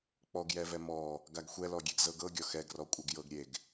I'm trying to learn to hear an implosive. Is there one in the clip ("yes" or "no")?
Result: no